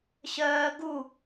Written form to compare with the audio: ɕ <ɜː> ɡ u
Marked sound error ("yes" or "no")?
no